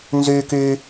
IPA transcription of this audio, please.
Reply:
n z yː˥ k y˥

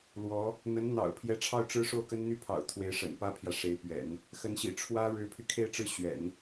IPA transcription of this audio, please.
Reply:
l w ɔ˧˥ | n̪ ə˧˥ n n̪ ɑ̰˨˩ ʊ̯ pʰ j ɛ˥ ʈ͡ʂʰ ɑ˥˩ ʊ̯ ʈ͡ʂ ɻ̩˥ ʂ o˥˩ ʊ̯ k ə˥ n n̪ y˥ pʰ ɑ̰˨˩ ʊ̯ t̪ʰ w e˧˥ ɪ̯ ʂ ə̰˨˩ n p ä˥ pʰ j ä˨ ʂ e˧˥ ɪ̯ p ɥ ɛ̰˨˩˦ n | x ə˧˥ n ɕ ḭ˨˩ ʈ͡ʂʰ w ä˥ ɻ ɻ̩˧˥ pʰ y˧ kʰ e˥˩ ɪ̯ ʈ͡ʂ ɻ̩˥ ɕ ɥ ɛ̰˨˩˦ n

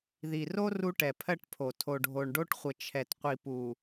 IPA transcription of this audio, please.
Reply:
ð i˨ r o˦ r u˦ ʈ ɛ˨ pʰ ɜ˦ ʈ pʰ o˨ tʰ o˨ ɖʱ o˨ ɳ ɖ o˦ ʈ χʷ ə˨ t͡ʃʰ ɛ˨ t qʷ i˨ p u˨

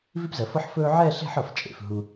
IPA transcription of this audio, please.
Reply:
v i˥ p z ɜ˩˧ f ɤ˥ ħ f ɵː˥ ʕ ɛː˥˧ ɬ e̤˥˧ ħ ɤ˧˩ f t͡ʃʼ ḛ˩˧ f ɦ u˧

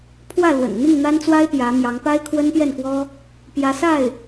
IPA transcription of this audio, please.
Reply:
pʰ w ä˥˩ l w ə̰˨˩ n n̪ i˥˩ ŋ n̪ a˥ n t͡s w a˥ ɪ̯ p j ä˧˥ m j ɑ˧˥ ŋ p a˥ ɪ̯ kʰ w ə˥ n p j ɛ˥˩ n k w ɔ˥ | p j ä˧˥ s a˥˩ ɪ̯

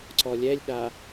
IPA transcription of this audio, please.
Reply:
ǀ ɔ lʲ ɛ lʲ ɗ a

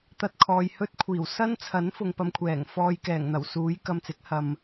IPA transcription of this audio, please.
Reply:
t̪ ɐ˧ t̚ kʰ ɔː˨ j h ɵ˥ t̚ kʷʰ iː˨˩ w s ɐ˥ n t͡sʰ ɐ˨˥ n f ʊ˨ ŋ p ɐ˧ m kʷʰ ɛː˨˩ ŋ f ɔː˧ j k ɛː˨˩ ŋ n̪ ɐ˨˩ w s uː˨˥ j k ɐ˧ m t͡s ɪ˨˥ k̚ h ɐ˨ m

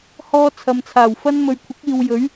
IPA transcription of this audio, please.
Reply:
h ɔː˧ t͡sʰ ɐ˨ m t͡sʰ aː˨˩ w f ɐ˥ n m ɵ˨ ɥ kʷʰ ɪ˨˥ k̚ iː˨ w j ɵ˨˥ ɥ

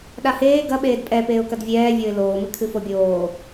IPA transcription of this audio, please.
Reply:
ɗ a h eː ɡ ɐ ɓ eː d pʼ ɛ p eː ʊ̯ k ɐ d vʲ ɛː vʲ o ɪ̯ l oː m ɨ kʰ ɨ f o bʲ oː

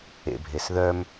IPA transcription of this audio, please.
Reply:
ḛ bʱ e s ð œ m

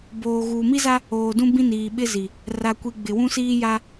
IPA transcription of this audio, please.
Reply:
b oː˨ ɣ uː˨ m i˦ z a˦ | oː˨ d ũ˦ b ĩ˦ n iː˨ ɓ ɪ˦ z i˨ | r a˨ kʷ i˨ ɡ͡b ɪ˨ w ũ˦ s iː˦ j a˦

